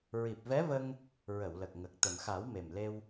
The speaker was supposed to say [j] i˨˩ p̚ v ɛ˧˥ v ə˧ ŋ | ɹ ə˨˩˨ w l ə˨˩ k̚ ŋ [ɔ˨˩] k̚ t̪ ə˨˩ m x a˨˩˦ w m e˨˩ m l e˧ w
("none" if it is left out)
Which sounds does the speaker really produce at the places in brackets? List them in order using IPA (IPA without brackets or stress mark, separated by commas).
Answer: ɹ, ə˨˩